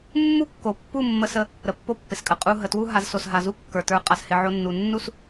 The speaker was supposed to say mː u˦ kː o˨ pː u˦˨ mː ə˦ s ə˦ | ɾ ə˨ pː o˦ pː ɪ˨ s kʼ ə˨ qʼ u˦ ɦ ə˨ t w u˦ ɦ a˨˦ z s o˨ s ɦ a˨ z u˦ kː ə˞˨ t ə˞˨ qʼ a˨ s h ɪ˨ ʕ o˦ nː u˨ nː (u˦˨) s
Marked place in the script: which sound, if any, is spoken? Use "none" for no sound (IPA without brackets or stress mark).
u˦˨